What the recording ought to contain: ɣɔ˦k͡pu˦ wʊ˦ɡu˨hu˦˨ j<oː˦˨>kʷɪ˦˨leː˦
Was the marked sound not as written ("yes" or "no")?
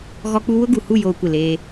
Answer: yes